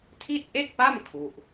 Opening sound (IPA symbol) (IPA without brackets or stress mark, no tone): tʰ